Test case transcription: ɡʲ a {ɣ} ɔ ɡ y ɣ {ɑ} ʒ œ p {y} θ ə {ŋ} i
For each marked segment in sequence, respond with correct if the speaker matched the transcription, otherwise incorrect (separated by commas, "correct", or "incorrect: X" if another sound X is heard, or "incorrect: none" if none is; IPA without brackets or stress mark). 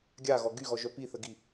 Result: correct, incorrect: ɔ, incorrect: i, incorrect: ɡ